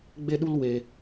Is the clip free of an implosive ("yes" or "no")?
no